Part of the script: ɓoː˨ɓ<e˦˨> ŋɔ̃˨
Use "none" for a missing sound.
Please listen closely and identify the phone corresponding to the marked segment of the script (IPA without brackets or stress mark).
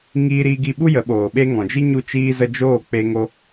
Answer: e˦